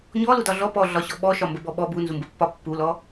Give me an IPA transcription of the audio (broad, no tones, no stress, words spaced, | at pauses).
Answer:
ɲɔludɒ ɮɔ pɔɮɒɕɔ ɓɔʃɒmbə bɔɓɔ bunzumbə pːɒpːulɔ